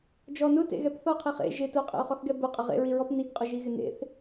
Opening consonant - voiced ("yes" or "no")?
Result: yes